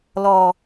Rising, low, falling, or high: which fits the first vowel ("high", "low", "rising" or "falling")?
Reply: low